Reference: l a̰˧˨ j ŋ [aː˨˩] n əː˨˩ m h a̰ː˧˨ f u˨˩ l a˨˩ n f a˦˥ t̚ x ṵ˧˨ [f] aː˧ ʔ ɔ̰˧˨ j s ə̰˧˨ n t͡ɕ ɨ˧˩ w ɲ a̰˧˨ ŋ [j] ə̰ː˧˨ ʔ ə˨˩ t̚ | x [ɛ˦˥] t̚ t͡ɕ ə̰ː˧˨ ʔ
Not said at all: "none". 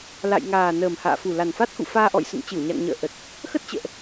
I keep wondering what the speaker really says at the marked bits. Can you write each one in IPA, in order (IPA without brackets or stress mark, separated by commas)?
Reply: aː˨˩, f, ɲ, ə˦˥